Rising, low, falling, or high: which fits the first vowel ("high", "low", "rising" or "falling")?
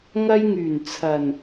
high